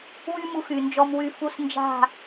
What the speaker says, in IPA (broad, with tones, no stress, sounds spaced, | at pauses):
w y˦ m u˧ x y˨ n d͡ʒ ɔ˧ m w y˧ f u˧ s n d͡ʒ a̤˦˨